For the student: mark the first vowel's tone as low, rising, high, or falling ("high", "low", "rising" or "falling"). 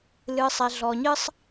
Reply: low